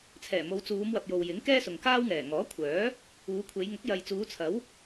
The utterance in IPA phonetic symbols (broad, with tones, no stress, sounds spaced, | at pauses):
t͡sʰ ɛː˨˩ m o˨˧ w t͡s uː˨˧ m w ɐ˨ p̚ j o˨ w j ɪ˨˥ ŋ k ɛː˥ s ʊ˨ ŋ k aː˥ w ŋ ɛː˨˩ ŋ ɔː˨˥ kʷʰ œː˨˥ | uː˨˧ kʷʰ e˨˧ j ŋ ʊ˨˥ k̚ j ɐ˨ j t͡s uː˨˧ t͡sʰ ɐ˨˥ w